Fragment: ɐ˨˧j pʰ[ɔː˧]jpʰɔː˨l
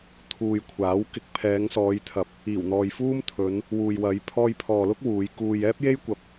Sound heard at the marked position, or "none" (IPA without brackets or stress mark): ɔː˧